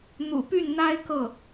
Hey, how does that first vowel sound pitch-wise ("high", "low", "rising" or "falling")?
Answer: low